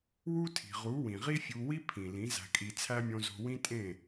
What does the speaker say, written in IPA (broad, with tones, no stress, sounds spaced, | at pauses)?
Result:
w u˦ tʰ i̤˨ ʁ u˨˦ w ĩ˨ ʁ i˦ fʲ u˧ w i˦ pʰ ĩ˨ l ĩ˨˦ z æ̤˧ kʼ i˧ t͡sʰ æ˦ mʲ õ˧ z o̤˧ w ĩ˦ tʼ ẽ˦˨